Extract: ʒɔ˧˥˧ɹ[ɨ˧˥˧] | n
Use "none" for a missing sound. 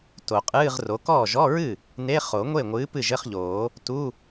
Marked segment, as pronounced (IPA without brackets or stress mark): ɨ˥˩